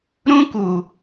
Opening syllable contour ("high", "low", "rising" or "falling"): high